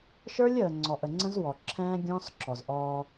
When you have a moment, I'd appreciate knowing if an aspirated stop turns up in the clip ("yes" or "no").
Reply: yes